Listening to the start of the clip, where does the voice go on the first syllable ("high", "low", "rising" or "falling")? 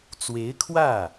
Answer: rising